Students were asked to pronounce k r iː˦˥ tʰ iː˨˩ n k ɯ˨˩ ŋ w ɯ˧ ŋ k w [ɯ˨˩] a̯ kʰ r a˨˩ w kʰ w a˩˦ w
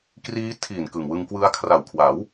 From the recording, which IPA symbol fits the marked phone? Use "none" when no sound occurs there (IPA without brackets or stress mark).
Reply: ɯ˦˥